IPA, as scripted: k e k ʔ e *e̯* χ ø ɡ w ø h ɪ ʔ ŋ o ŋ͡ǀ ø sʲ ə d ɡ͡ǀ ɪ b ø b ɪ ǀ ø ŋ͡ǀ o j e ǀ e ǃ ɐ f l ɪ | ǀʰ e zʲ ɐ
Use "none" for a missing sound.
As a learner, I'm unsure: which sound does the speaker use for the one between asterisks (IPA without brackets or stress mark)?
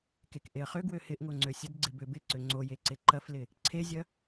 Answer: ɐ̯